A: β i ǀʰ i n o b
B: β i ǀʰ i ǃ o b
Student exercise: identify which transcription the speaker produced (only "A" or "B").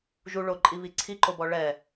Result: B